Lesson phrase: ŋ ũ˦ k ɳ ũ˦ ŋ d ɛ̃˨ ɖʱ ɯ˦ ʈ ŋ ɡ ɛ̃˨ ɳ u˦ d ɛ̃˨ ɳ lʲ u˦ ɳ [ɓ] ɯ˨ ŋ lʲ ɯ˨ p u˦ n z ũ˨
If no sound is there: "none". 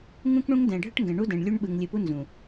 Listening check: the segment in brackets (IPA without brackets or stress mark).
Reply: ɓ